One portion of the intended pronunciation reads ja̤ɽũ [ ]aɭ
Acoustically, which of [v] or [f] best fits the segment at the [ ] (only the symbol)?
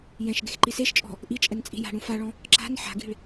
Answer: f